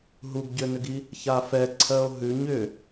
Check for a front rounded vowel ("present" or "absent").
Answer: present